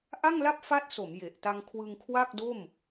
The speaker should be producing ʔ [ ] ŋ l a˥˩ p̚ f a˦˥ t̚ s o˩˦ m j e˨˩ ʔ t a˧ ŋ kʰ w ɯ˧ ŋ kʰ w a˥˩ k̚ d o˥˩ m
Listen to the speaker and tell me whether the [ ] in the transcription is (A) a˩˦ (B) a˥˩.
B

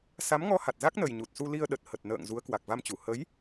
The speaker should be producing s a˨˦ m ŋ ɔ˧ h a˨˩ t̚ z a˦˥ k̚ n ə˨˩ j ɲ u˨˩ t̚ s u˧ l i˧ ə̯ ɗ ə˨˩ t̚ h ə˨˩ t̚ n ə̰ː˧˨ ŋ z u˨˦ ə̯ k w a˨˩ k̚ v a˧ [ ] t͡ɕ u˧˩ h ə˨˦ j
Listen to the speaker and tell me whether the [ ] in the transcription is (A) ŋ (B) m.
B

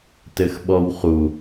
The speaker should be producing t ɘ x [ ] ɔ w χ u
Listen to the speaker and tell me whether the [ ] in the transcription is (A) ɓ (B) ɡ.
A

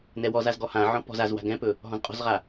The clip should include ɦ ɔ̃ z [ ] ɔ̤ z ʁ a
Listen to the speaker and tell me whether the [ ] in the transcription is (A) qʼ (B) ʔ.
A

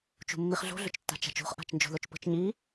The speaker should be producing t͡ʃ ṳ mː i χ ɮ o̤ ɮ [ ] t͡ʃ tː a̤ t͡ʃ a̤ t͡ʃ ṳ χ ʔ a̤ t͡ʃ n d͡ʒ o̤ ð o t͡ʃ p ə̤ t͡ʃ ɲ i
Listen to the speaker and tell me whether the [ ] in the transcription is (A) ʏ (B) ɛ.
A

